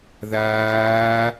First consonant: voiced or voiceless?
voiced